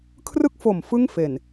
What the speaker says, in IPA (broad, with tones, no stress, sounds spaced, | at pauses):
kʰ r ɯ˥˩ k̚ f o˨˩ m f ɯ˥˩ ŋ f e˨˩ n